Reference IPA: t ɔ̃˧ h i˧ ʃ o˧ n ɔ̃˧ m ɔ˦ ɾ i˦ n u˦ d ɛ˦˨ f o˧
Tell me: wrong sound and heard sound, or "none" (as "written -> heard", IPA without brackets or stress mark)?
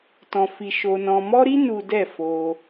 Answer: h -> f